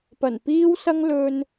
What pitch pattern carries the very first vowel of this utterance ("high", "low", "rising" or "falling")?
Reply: low